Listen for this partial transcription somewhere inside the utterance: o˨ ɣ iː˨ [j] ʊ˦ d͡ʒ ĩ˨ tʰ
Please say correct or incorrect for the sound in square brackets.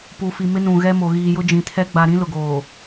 correct